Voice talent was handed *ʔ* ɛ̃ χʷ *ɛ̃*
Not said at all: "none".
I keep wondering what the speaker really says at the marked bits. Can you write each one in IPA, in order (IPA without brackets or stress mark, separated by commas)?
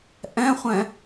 ʔ, ɛ̃